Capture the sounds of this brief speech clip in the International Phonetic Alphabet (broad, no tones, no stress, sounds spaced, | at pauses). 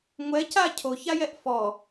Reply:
ŋʷ ɛ c a cʰ o ç a j ɛ ʔ f ɔ